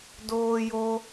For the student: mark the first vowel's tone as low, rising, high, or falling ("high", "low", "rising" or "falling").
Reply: high